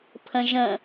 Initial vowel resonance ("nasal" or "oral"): nasal